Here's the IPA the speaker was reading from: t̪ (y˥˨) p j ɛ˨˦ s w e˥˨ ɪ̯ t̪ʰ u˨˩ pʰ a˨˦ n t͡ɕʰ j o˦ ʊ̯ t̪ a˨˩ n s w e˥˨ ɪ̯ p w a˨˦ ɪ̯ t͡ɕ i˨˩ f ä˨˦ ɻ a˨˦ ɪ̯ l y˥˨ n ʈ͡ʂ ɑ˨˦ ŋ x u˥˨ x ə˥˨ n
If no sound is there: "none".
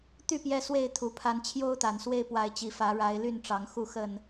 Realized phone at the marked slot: y˥˨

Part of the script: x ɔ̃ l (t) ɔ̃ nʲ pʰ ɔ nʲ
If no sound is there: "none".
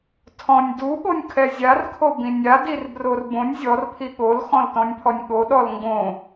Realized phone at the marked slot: t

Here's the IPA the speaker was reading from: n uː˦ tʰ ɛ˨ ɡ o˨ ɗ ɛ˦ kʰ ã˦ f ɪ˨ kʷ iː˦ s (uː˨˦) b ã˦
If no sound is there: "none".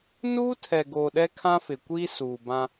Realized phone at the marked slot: uː˨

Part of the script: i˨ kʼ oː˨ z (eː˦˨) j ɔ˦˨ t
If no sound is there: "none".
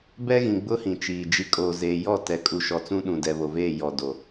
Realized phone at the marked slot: eː˨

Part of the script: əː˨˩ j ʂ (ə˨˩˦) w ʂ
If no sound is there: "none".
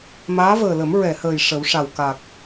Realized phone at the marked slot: ə˨˩˦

